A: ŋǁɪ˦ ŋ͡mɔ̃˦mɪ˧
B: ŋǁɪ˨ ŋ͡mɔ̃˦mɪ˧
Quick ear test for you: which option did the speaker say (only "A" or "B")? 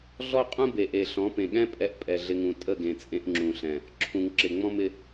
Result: B